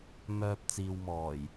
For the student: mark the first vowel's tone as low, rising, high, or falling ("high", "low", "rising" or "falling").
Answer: low